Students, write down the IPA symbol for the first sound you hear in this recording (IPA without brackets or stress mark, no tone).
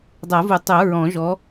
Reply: dˤ